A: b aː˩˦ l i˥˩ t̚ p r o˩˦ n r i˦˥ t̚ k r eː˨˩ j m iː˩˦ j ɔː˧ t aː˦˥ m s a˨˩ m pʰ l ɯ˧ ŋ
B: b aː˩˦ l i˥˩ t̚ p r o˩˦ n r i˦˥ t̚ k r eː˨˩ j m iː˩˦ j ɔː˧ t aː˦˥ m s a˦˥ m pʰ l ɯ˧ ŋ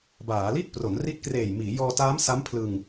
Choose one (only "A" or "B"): B